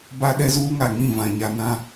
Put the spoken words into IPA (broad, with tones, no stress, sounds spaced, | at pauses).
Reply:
b a˦ ɗ ɛ˦ z uː˦ ŋ a˨ ŋ ĩ˦˨ v ã˨ ɲ a˨ n ã˦